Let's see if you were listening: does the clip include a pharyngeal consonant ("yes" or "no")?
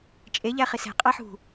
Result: yes